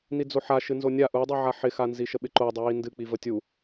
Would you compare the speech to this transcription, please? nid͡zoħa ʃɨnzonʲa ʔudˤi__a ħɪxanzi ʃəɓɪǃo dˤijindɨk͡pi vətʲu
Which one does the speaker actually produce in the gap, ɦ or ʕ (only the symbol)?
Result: ʕ